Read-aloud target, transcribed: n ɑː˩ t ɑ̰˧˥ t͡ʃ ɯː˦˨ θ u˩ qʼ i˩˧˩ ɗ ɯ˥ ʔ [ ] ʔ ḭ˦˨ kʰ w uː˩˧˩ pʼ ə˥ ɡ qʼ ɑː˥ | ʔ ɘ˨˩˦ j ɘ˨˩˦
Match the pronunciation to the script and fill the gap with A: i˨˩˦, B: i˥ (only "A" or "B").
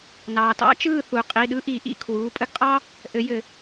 A